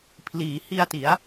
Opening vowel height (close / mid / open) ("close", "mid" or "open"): close